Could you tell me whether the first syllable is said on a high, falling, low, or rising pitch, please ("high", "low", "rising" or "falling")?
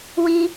high